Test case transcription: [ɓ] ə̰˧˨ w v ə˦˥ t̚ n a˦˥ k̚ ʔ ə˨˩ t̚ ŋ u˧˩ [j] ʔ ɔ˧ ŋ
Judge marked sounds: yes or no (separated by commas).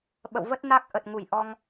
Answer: yes, yes